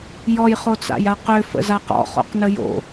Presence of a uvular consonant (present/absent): present